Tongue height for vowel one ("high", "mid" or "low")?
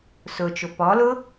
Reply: high